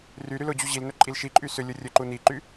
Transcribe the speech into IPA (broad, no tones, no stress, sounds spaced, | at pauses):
r y ɾ y l ʊ d͡ʑ u ʑ i l n ɵ ǃʼ i l ʃ i ǃʼ y s ʏ lʲ ʊ rʲ ɵ ǃ u n i ǃ y